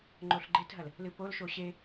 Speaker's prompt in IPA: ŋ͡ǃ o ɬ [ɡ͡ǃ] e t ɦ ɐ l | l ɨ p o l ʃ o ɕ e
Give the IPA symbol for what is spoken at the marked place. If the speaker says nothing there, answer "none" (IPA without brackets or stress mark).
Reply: ɡ͡ǃ